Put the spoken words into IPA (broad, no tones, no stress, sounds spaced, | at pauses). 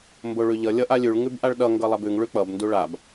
m b o ɭ ʉ ʎ ʌ lʲ ʌ ʔ a lʲ ʉ ɭ ŋ ʉ b ʔ a ɭ ɗ ʌ ŋ ɡ ʌ lˠ a b ʉ ŋ ɭ ʉ k͡p ʌ b n d u ɭ a b